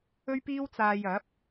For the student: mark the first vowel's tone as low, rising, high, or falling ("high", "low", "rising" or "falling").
high